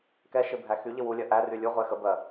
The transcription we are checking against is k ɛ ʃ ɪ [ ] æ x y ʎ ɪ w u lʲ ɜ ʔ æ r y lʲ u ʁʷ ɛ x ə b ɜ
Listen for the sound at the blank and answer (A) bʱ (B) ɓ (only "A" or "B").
A